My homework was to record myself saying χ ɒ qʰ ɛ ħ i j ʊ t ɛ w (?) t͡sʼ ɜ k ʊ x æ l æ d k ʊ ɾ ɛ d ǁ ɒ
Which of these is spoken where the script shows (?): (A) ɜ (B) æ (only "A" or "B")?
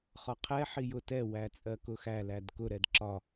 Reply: B